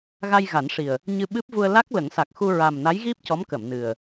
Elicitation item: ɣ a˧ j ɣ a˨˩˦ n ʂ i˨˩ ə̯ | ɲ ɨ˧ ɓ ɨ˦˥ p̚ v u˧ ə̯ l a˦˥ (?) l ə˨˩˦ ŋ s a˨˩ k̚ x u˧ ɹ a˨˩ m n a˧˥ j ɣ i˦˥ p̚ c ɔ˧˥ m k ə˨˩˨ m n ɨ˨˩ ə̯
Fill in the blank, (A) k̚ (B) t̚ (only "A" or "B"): A